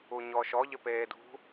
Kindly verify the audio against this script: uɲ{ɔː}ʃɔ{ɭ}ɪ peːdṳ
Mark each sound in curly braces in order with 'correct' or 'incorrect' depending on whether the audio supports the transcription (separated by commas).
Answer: correct, incorrect